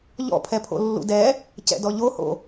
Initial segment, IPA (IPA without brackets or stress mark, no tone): ʎ